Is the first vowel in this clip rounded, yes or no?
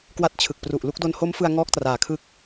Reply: no